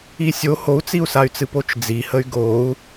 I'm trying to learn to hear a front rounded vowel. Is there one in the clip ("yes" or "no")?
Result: yes